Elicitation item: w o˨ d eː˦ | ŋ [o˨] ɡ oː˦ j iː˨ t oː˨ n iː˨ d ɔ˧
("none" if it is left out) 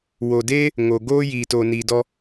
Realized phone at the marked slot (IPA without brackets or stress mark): o˨